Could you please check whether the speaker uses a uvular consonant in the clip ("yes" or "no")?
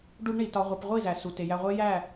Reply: yes